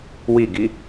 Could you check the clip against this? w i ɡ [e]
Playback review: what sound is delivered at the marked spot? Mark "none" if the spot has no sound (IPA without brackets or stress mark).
i